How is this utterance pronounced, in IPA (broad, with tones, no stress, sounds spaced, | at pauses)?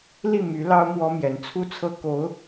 l i˥˩ m y˧˥ l ɑ˥ ʊ̯ m w ɔ˥ m j ɛ˧˥ n t͡sʰ u˥ t͡sʰ ɤ˥ k o˧˥ ʊ̯